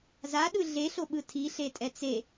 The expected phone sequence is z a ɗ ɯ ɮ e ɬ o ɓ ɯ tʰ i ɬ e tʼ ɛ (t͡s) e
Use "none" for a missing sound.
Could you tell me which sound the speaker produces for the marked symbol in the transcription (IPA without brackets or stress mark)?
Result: t͡s